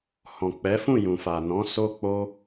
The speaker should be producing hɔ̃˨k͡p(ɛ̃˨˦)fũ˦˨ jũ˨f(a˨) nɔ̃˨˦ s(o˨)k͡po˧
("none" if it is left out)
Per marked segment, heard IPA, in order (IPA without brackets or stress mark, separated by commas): ɛ˨˦, a˨, o˧